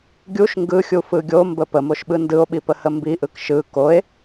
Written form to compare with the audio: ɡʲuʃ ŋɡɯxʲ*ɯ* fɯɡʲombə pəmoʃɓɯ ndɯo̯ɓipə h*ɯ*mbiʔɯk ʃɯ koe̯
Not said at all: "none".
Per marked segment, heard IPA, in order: u, ə

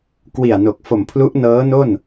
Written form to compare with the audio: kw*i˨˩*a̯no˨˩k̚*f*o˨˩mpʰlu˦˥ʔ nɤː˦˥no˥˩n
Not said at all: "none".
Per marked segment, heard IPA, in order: i˨˩, f

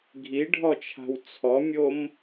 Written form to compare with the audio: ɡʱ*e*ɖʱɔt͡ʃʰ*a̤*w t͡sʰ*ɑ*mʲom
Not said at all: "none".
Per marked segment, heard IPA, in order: i, a̤, ɔ

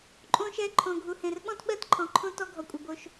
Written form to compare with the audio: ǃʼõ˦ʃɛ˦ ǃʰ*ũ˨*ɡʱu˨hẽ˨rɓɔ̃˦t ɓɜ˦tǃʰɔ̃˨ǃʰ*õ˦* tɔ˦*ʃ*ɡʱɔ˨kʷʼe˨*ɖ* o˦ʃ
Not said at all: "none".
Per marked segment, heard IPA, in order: õ˨, õ˦, none, b

